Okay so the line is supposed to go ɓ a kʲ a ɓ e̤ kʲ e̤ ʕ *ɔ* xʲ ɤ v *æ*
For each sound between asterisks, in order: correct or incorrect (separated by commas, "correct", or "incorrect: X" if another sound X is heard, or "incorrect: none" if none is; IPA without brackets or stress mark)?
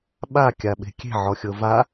correct, incorrect: a